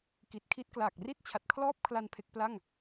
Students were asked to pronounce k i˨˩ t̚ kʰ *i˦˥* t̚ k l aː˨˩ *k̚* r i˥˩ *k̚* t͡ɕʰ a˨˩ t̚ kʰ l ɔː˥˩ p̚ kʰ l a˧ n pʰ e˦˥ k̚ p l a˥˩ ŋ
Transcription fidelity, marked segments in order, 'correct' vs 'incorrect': correct, correct, incorrect: t̚

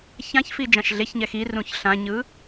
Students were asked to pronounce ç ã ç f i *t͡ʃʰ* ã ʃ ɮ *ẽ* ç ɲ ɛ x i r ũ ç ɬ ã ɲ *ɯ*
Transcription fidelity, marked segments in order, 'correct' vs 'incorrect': incorrect: d͡ʒ, incorrect: e, correct

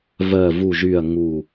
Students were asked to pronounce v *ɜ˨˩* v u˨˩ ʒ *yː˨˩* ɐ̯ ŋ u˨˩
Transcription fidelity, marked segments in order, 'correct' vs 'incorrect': correct, correct

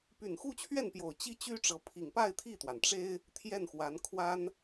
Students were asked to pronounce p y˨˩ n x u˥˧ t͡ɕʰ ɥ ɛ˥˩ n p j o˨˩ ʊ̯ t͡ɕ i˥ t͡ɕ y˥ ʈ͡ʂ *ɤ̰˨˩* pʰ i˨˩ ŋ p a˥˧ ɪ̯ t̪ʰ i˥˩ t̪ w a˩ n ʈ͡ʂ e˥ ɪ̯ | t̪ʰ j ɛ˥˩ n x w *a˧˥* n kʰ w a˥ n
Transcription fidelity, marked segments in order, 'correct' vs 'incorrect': incorrect: ɤ˧˥, correct

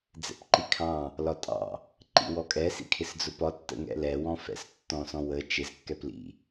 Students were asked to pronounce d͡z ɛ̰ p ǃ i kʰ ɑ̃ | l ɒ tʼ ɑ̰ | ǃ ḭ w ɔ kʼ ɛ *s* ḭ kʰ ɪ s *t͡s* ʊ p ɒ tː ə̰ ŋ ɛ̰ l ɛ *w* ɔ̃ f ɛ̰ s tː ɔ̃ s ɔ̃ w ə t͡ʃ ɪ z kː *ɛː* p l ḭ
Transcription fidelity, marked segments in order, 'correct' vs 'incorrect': correct, incorrect: d͡z, correct, incorrect: ɛ

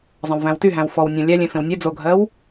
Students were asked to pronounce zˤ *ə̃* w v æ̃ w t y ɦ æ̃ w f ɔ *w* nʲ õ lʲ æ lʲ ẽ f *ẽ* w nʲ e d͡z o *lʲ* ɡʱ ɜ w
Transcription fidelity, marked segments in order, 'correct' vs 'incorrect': correct, correct, correct, incorrect: none

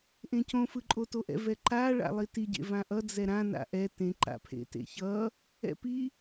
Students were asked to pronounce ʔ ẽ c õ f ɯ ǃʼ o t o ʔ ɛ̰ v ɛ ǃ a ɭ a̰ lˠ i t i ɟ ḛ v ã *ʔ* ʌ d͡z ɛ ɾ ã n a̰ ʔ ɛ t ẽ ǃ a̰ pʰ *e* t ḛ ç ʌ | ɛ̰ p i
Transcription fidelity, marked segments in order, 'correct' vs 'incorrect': correct, incorrect: ḛ

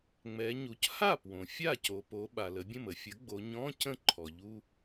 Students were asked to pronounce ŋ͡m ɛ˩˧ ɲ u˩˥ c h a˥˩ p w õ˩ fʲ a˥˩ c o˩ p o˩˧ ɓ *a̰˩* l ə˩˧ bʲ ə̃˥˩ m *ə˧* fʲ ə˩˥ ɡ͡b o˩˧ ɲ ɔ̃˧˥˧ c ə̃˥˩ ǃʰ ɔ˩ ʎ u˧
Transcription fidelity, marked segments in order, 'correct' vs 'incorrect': incorrect: a˩, correct

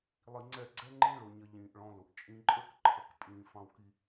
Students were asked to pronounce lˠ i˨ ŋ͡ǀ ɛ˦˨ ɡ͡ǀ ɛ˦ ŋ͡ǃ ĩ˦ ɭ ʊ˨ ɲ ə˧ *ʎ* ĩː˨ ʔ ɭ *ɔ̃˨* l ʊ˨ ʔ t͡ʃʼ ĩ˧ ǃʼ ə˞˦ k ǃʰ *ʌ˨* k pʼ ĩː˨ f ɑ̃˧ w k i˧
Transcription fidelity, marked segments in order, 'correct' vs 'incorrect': correct, incorrect: ɔ̃˧, correct

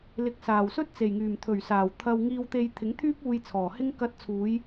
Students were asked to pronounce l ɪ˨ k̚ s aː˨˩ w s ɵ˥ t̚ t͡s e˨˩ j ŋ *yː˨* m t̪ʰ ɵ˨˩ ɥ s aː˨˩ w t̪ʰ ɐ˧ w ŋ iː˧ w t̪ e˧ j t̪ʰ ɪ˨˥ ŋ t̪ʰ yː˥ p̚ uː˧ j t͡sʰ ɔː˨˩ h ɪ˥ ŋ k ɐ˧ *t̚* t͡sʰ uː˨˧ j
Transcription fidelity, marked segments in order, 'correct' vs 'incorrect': incorrect: yː˨˩, correct

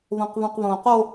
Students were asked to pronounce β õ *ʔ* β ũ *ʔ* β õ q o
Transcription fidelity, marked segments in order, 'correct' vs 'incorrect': incorrect: q, incorrect: q

